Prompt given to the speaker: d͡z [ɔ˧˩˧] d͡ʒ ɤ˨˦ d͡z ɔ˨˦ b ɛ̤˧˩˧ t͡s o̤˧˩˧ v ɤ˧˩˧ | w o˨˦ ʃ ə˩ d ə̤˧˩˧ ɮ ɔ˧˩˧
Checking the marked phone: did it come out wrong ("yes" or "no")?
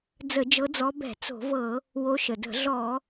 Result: yes